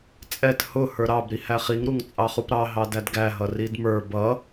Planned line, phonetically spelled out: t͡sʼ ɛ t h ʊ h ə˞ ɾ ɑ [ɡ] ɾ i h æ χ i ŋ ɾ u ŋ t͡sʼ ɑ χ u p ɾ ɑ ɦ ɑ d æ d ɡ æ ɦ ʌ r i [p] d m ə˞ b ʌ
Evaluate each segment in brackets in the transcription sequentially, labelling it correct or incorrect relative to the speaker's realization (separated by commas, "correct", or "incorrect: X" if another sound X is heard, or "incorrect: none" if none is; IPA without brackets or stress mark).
incorrect: b, incorrect: none